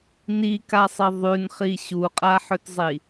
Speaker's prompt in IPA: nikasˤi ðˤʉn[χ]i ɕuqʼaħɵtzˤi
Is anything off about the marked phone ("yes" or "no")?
no